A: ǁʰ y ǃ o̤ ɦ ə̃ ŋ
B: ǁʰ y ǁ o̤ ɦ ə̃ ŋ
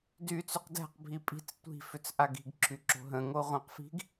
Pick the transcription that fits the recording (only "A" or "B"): B